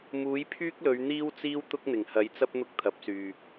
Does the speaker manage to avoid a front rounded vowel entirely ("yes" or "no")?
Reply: no